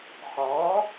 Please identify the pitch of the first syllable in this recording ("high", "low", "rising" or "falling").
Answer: rising